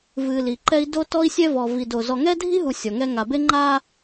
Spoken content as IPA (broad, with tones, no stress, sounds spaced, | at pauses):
v ɨ˨ l i˨ ǃ ɛ˦ i̯ d o˦ t ɔ˦ i̯ sʲ ɛ˦ v ɔ˨ v i˨ d o˨ z ɔ˨ ŋ ɛ˦ dʱ i˦ ɦ u˨ sʲ ɔ˨ ŋ ɛ˦ ŋ a˨ b e˦ ŋ͡ǃ a˦